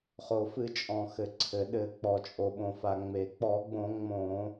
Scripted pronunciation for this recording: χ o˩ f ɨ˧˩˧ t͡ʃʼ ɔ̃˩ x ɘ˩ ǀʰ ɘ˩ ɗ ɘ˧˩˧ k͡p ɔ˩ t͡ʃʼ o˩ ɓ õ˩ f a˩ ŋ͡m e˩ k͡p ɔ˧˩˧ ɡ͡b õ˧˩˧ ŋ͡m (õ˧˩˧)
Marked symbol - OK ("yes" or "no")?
yes